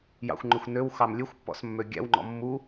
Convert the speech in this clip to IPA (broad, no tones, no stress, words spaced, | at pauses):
jɑ̰xʷŋ͡ǃøxʷ nøwxɑm lʲøxʷ pːɔ̰smːø ɡʲæ̰wŋ͡ǃɔ̰ mːu